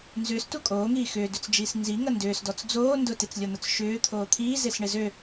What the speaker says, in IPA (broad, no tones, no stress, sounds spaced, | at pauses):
n z ʏː s t u kʼ oː ŋ iː x ʏː d ʏ t͡s d͡ʒ iː s n z i ŋ ɐ n d ʏː s d ɔ t͡s d͡z oː n d ʊ t e t͡s lʲ ɔ n̪ ʊ t͡s ʃ ʏː t̪ʰ oː t̪ʰ iː z e s ɳ ɪ z ø